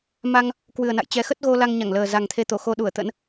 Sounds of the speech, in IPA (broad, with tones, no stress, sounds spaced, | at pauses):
m a˧ ŋ | k w ɨ˨˩ ə̯ n a̰˧˨ j t͡ɕ ɛ˨˦ x ə˦˥ t̚ ɣ o˧ l a˧ ŋ ɲ a˧˩ ŋ l əː˨˩ z a˨˩ ŋ t̪ʰ e˧ t̪ o˧˩ x o˧ ɗ u˧˩ ə̯ t̪ ə̰˧˥ n